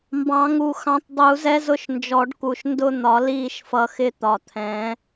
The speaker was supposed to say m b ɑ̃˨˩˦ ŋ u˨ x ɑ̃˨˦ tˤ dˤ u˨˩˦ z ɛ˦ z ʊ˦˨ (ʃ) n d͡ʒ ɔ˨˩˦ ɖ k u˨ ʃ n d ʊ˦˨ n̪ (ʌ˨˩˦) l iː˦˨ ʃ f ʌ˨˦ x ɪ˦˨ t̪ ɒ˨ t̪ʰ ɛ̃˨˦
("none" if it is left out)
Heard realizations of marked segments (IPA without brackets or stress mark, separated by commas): ʃ, ɒ˨˩˦